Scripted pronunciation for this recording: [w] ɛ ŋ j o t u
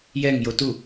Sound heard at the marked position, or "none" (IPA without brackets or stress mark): j